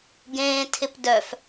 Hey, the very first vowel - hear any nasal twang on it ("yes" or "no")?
yes